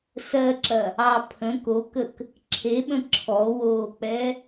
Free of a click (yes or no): no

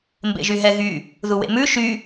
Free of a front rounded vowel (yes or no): no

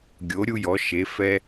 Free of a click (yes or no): yes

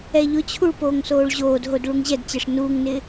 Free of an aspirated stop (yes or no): no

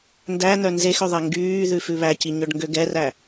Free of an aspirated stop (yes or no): yes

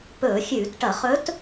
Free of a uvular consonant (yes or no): no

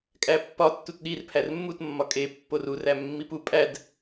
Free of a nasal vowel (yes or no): yes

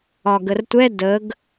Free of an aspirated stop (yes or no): yes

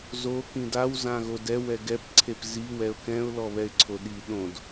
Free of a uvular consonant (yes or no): yes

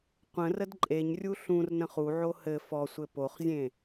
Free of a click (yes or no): no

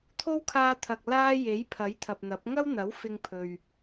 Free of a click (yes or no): yes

